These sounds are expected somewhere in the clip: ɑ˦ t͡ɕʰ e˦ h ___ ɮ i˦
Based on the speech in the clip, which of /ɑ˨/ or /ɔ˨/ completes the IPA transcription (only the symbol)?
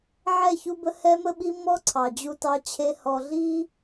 ɔ˨